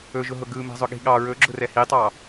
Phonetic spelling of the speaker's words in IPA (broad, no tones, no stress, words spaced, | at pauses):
ɵʒʊɦʊ ɡɯ mɛ̤zˤʊɠi̤ɠɑ ɹɵɡ͡ǁʊrɛ hitˤɑ